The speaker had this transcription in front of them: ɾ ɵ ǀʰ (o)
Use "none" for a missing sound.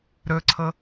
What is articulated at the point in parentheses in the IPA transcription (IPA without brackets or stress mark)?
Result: ɤ